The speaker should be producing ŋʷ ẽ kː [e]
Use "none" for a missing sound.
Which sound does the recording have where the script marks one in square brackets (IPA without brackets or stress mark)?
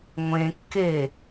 e